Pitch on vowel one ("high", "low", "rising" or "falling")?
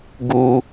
low